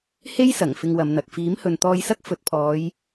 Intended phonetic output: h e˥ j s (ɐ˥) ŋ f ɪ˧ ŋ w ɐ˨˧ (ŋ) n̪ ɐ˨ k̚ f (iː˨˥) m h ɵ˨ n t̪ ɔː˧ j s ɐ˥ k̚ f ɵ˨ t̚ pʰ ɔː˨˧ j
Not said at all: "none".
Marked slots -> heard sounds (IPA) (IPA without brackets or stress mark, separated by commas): ɐ˨˩, m, iː˨˥